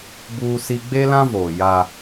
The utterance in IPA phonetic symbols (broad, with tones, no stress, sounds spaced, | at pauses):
b uː˦ s i˦ ɡ͡b e˦ l ã˦ v oː˨ j a˦